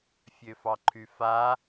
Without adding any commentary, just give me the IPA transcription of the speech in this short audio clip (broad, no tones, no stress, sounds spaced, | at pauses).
fʲ ø f ɑ ǃʰ y f a